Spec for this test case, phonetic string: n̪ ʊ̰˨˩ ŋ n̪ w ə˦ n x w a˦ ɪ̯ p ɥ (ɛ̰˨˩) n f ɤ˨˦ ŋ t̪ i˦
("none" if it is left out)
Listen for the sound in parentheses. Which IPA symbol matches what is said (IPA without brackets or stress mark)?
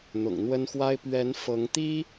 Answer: ɛ˨˦